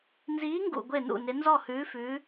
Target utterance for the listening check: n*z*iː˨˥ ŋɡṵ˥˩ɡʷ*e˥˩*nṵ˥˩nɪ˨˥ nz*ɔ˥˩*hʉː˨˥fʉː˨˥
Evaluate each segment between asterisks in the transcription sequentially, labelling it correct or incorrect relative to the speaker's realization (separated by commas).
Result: correct, correct, correct